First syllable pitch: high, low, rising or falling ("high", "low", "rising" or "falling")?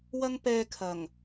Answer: high